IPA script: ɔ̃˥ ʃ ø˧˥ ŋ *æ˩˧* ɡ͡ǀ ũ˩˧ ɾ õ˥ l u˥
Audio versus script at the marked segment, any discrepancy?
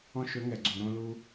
yes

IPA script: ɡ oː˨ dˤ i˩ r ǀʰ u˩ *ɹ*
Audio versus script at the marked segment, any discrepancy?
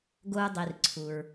no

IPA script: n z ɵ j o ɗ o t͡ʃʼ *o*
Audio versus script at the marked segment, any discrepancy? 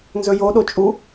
yes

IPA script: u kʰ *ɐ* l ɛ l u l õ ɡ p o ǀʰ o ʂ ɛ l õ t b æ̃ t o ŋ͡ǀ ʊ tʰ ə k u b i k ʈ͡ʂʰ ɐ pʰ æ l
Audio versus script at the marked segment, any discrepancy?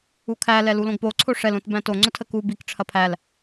yes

